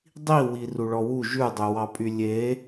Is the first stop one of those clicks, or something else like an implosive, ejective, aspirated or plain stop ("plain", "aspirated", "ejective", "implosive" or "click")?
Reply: plain